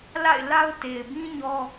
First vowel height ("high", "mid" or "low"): low